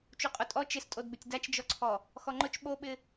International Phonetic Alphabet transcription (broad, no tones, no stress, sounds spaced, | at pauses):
t͡ʃ u qʼ ʊ tʼ ɔ t͡ʃ ɪ s tʼ o d b ɪ tʲ d a t͡ʃ d͡ʒ ɔ ǀʰ ɔ | x ɔ ŋ͡ǃ ʊ t͡ʃ ɓ o ɓ ɪ